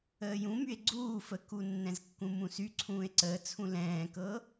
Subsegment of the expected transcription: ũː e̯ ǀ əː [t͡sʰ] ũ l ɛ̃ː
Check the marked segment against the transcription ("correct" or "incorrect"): correct